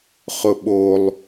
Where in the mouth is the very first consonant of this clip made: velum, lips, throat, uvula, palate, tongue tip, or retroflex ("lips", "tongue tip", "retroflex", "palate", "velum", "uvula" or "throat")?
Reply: uvula